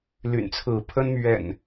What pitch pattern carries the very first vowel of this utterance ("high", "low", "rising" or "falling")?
low